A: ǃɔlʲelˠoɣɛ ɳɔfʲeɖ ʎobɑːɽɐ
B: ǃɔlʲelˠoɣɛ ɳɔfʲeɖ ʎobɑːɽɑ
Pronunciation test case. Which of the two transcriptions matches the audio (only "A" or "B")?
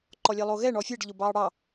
B